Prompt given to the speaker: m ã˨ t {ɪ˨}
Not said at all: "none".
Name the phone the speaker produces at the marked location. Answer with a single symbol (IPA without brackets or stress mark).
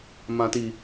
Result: i˨